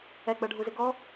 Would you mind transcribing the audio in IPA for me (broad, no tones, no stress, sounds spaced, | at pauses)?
ɛ ɡ͡b ʌ ɖʱ u z ɪ ɡ ɔ